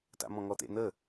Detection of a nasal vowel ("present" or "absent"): present